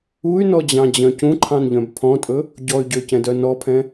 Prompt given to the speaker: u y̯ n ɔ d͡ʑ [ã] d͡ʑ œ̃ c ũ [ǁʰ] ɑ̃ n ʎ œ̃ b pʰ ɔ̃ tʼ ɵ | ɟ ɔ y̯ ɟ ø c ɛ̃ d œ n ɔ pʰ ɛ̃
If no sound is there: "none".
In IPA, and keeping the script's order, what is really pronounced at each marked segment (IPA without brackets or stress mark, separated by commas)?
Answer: ɑ̃, ǃʰ